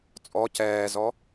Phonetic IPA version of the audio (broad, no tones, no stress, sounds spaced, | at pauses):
t͡sʼ ɔ c ɛː z ɔ